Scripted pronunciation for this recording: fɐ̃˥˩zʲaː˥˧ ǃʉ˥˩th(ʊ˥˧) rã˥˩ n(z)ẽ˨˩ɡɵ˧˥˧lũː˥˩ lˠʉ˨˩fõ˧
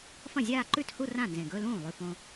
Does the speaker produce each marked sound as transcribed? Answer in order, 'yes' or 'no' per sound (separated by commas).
no, yes